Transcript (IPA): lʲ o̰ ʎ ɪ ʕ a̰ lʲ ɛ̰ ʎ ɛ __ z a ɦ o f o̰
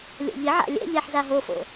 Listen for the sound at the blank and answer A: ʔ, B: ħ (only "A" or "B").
B